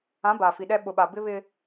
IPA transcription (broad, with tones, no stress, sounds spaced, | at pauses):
ã˨˦ b aː˨ f i˨ ɗ ɛ˦ ɓ ʊ˨ ɓ a˨ b ɪ˦ β ɪ˦